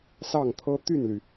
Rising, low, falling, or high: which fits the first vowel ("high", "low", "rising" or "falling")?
falling